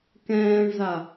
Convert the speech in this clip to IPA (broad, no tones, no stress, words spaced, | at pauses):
kɛ̃ːɳza